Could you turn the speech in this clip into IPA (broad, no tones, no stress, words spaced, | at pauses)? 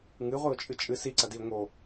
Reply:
ŋɨʁʷɨʊ̯t͡ʃʼɨ t͡ʃʼɨ siǀɐdiʊ̯ ŋo